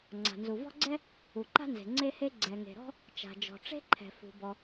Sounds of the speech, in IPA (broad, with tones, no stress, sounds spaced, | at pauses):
ŋ͡ǀ a̤˩ n z u˩ v ɔ̤˥ ɡ͡ǀ ɛ˥ | u˩ ǃ a̤˥ n z e̤˩ ŋ͡ǀ e˥ h e˥ ɡ͡ǀ ɛ˩ ŋ e̤˩ ɾ ɔ̤˥ | t͡ʃ a̤˩ d͡ʒ ɔ̤˩ ʈ͡ʂ e̤˥ ǃʰ ɛ̤˩ f ṳ˩ b ɔ˩